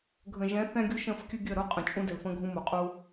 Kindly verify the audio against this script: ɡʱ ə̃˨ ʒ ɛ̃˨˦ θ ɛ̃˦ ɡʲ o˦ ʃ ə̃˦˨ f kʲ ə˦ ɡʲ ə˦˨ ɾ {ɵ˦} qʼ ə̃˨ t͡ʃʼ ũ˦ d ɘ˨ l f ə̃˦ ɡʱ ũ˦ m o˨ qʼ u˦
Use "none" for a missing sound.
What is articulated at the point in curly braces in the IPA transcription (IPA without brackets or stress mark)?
o˦